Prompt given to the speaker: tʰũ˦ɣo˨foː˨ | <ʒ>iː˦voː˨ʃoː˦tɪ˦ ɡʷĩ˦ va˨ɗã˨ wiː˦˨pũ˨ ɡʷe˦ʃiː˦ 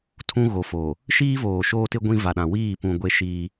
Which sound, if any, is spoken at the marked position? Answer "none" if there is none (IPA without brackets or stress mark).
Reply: ʃ